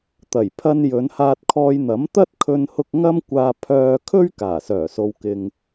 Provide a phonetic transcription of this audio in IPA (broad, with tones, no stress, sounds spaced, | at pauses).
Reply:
t̪ ɐ˨˩ j pʰ ɐ˧ n j ɵ˨˧ n h aː˧ t̚ kʰ ɔː˧ j n̪ ɐ˨˥ m t̪ ɐ˥ t̚ kʰ ɵ˧ n h ʊ˧ k̚ ŋ ɐ˥ m kʷ aː˧ pʰ œː˧ kʰ ɵ˥ ɥ k aː˨˩ s œː˨˩ s o˨ w k ɪ˨ ŋ